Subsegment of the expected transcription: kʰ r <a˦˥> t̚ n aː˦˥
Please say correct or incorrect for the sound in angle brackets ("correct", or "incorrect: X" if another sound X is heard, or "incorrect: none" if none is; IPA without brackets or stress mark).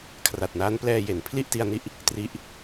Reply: incorrect: a˨˩